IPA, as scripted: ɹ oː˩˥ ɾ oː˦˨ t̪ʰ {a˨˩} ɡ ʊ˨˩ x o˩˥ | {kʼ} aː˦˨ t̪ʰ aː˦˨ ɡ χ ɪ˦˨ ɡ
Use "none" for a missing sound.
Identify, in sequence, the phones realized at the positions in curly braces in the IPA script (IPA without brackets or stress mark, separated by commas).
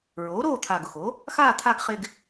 a˨˩, x